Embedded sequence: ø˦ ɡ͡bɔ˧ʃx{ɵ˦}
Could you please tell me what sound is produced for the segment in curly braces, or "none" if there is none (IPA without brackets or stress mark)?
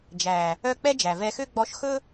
ɵ˦